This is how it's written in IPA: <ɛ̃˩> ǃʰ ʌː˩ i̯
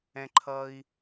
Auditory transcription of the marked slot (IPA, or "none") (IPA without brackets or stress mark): ɛ̃˩